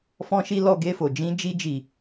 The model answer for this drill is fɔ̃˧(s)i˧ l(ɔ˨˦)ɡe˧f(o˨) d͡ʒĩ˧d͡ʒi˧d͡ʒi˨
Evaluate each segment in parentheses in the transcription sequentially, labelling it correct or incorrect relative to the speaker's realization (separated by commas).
incorrect, incorrect, correct